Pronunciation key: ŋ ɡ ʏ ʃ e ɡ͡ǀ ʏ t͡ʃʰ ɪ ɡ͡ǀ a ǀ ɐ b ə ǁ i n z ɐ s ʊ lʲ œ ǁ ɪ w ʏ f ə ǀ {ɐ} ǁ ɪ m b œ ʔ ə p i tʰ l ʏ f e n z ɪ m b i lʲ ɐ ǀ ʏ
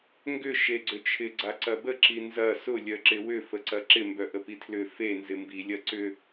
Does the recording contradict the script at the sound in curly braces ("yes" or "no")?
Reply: no